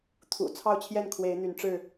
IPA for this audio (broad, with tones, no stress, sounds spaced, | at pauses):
t̪ʰ ṵ˨˩ t͡sʰ ɑ˥˨ ʊ̯ t͡ɕʰ j ɛ˥˨ n kʰ w e˨˦ ɪ̯ n̪ y˨˦ n ʈ͡ʂ ɻ̩˥˨